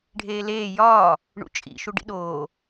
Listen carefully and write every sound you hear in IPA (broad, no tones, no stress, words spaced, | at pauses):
ɖʱeːleː jɒː | ɳṵt͡ʃʼḭ ʃuɖḭɗoː